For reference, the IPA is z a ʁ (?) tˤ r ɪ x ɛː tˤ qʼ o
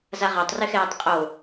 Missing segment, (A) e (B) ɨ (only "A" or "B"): A